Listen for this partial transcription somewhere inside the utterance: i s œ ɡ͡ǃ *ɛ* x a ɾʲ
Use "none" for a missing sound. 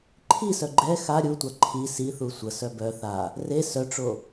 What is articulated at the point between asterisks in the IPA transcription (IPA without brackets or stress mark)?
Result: ɛ